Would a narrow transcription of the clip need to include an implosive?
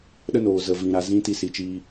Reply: yes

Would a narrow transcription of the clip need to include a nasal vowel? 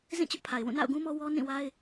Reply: yes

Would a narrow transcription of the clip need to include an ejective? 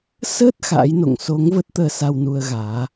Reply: no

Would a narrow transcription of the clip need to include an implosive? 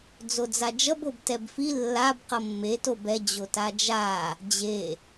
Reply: no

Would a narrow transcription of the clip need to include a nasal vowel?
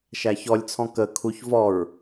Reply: yes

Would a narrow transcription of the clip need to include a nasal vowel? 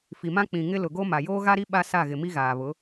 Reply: yes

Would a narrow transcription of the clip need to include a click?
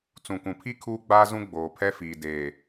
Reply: no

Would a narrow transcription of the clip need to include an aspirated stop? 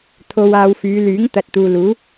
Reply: yes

